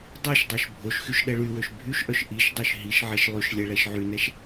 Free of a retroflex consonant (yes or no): no